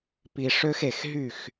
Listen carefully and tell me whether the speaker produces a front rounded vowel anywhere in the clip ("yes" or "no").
yes